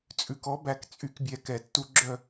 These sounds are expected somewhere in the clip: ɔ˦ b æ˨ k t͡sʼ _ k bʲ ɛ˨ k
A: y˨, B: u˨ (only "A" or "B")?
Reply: A